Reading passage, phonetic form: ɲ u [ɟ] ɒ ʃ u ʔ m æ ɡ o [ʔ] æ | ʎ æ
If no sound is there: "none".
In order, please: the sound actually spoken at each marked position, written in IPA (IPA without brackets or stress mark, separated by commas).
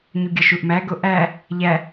ɡʲ, ʔ